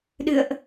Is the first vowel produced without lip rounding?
yes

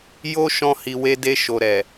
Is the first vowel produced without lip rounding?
no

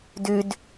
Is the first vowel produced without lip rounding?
no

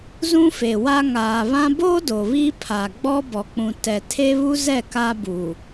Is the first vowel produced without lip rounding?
no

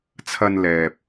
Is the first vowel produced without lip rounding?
yes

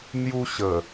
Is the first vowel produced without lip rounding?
no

